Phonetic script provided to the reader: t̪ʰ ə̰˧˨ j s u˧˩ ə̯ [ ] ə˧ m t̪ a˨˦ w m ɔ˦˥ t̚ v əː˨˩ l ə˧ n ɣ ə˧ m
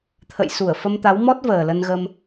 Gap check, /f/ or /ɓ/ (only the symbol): f